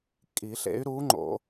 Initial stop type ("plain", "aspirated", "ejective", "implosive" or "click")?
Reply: ejective